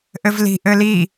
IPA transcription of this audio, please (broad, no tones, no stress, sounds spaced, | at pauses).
ʔ ɘ v l i̤ ʔ ɘ l i